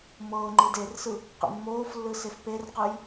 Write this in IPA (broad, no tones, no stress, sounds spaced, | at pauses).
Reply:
m ɤː ŋ͡ǃ i d e r s ɯ | q ḭ mː oː f lː ɯ s e f p e r q ɯ j